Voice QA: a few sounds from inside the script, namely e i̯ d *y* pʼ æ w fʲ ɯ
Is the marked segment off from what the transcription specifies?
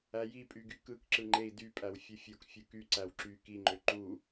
no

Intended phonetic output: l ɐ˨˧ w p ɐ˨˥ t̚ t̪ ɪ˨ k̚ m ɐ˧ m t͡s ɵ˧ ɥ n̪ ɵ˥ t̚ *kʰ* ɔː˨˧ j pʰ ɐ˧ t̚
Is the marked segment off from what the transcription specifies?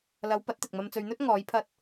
yes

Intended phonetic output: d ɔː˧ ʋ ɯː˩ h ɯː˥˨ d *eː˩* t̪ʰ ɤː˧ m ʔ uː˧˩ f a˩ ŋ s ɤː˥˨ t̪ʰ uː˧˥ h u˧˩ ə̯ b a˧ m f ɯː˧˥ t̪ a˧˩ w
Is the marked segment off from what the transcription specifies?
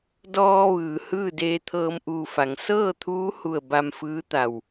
yes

